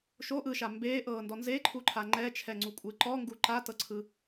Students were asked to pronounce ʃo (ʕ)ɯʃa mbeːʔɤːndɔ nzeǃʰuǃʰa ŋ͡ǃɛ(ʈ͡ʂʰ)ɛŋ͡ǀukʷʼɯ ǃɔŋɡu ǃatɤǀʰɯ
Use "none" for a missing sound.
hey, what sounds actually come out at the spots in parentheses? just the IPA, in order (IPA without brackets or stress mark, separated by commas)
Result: ʔ, t͡ʃʰ